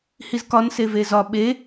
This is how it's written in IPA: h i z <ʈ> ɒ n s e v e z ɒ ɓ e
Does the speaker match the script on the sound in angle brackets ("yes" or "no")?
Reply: no